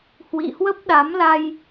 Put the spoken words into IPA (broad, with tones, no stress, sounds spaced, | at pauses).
h w ḭ˧˨ h w ə˦˥ p̚ ɗ a˨˦ m l a˧ j